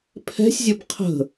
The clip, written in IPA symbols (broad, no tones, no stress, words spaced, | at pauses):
pʰɛ̤sʲzʲʌb qʰə̤